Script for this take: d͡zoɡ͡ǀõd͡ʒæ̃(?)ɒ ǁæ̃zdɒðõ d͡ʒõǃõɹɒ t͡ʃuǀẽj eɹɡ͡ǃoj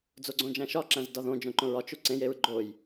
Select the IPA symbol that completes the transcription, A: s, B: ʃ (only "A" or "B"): B